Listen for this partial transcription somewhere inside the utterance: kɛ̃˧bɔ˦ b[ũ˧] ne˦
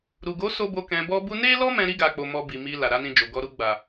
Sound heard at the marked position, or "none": u˧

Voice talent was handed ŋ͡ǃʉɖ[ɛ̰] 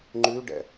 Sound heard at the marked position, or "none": ɛ̰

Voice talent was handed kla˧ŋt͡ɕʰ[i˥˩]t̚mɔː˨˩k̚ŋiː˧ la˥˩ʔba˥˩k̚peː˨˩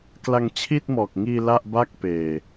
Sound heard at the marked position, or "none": i˥˩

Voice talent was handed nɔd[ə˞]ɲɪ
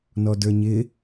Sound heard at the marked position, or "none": ə˞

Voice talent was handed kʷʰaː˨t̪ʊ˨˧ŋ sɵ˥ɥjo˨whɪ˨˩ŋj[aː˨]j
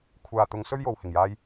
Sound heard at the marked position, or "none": aː˧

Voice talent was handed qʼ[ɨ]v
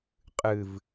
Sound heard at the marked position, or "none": ɨ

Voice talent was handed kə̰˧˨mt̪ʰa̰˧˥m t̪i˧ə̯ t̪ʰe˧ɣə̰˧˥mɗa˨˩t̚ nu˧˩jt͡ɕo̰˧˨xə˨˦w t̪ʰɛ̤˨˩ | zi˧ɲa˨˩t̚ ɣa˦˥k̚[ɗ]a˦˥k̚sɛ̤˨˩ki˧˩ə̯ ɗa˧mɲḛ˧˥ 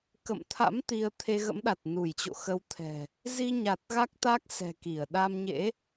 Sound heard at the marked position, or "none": t̪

